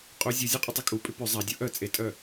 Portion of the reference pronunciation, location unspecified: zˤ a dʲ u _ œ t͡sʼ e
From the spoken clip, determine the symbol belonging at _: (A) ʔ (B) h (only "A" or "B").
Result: A